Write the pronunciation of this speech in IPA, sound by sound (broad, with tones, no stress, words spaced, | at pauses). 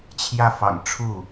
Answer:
t͡ɕʰjä˥˩fɑ̰˨˩ŋʈ͡ʂʰu˥˩